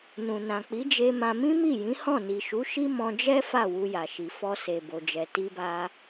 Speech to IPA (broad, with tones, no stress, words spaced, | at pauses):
nũ˨nã˨k͡pi˨˦d͡ʒe˧ mã˧ mĩ˦mi˦˨jĩ˨˦hɔ̃˦˨ ni˨ʃu˨˦ʃi˦ mɔ̃˧d͡ʒɛ˦ fa˦˨ wu˧ja˨ʃi˨ fɔ˧se˨ bo˨d͡ʒɛ˨ ti˧ba˧